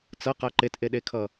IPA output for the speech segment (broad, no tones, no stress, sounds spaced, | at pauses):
t͡s ʌ q a ǃ e t ʔ e ɗ e kʰ ʌ